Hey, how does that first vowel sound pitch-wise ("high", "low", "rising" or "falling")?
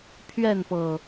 falling